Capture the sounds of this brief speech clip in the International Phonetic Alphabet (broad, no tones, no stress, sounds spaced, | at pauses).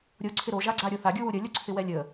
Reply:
ɾʲ o ǀʰ ɪ ɾ o ʒ a ɡ͡ǀ a ɾʲ o θ a ɡʲ u w u ɾʲ ə lʲ o ǀʰ ɪ w ɛ lʲ ə